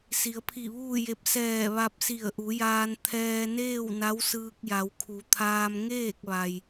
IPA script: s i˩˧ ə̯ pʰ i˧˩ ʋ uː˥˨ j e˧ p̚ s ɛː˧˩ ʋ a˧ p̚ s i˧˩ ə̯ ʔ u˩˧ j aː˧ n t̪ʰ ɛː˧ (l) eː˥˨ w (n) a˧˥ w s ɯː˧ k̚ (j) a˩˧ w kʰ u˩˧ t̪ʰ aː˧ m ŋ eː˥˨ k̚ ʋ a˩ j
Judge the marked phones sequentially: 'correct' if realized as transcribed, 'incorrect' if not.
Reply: incorrect: n, correct, correct

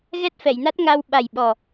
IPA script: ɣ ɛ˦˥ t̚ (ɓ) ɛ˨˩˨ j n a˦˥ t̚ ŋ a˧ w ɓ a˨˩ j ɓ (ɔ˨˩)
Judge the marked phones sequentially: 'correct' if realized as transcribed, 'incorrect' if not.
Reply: incorrect: f, correct

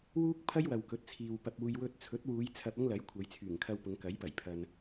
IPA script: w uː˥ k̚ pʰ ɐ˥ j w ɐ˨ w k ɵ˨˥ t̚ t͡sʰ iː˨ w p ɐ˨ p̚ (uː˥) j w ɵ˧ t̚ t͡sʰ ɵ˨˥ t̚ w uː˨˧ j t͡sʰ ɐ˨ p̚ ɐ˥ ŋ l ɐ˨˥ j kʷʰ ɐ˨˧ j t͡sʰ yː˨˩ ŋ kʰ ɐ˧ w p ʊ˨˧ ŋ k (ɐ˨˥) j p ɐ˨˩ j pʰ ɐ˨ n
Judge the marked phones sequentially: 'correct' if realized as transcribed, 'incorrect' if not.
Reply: incorrect: uː˨, correct

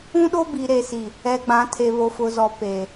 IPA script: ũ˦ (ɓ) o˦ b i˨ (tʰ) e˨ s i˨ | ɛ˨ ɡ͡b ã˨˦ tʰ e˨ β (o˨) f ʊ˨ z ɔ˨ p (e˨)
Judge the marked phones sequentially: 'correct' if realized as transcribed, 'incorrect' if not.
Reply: incorrect: ɗ, incorrect: ɾ, correct, correct

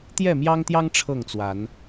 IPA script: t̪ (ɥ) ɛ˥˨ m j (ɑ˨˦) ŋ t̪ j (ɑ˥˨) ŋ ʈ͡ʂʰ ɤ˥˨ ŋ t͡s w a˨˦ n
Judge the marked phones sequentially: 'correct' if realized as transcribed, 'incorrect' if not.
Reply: incorrect: j, incorrect: ɑ˦, incorrect: ɑ˦

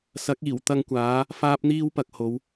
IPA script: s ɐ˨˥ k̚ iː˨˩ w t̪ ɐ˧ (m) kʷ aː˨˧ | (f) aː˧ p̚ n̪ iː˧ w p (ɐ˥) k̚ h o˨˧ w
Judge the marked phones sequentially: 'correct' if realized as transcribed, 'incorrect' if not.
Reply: incorrect: ŋ, correct, incorrect: ɐ˨

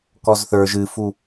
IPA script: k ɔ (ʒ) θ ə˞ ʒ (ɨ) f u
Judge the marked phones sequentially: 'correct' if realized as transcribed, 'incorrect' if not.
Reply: incorrect: z, correct

